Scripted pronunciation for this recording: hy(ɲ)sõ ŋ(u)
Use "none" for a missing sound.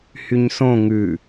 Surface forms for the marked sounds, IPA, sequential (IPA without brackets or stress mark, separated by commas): ɲ, ʉ